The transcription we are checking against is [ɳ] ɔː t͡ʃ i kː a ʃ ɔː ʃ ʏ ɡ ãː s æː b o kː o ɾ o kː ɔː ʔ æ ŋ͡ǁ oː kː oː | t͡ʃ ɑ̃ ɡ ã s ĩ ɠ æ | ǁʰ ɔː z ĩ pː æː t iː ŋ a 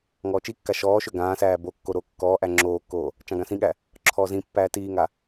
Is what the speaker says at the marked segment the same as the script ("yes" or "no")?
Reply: no